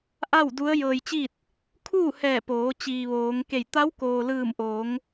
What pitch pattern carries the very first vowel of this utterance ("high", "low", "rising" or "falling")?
falling